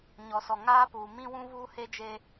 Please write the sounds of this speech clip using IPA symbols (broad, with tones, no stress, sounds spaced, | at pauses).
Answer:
ɲ ɔ˨ s ɔ˨ ŋ aː˦ p uː˨ m ĩ˦ w ũ˦ v uː˦ h e˦ d͡ʒ e˦